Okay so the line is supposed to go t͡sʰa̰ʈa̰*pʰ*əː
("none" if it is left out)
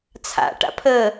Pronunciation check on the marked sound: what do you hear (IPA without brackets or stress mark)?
pʰ